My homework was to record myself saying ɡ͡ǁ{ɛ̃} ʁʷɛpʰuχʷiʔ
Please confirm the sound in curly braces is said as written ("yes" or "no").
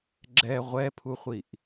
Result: no